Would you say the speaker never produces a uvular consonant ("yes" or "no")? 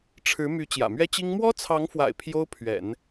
yes